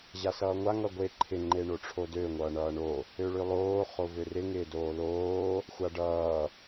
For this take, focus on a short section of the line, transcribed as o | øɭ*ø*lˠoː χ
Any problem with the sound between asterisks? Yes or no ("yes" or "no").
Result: no